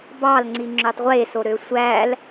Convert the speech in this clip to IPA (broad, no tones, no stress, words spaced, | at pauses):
bɑlŋ͡ǀi ŋ͡ǁøtˤʁʷeso ɾøsʷæl